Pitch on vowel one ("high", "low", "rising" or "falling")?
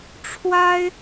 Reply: high